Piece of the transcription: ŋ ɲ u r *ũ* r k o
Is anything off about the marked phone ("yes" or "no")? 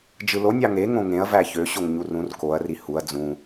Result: no